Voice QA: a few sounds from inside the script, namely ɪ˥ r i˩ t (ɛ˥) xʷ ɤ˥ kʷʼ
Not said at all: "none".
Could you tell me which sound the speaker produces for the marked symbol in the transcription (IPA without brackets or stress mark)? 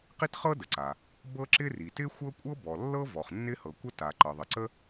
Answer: ɪ˥